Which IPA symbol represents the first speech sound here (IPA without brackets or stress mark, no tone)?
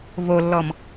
v